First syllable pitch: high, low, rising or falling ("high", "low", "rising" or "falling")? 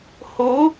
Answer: rising